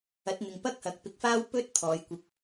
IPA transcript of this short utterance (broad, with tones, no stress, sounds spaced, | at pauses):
ɐ˨˥ t̚ n̪ ɪ˨ ŋ p ɐ˥ k̚ h ɐ˨˥ k̚ p ɪ˧ k̚ f aː˥ w p ɵ˥ t̚ t̪ʰ ɔː˨˧ j kʷ ɪ˧ k̚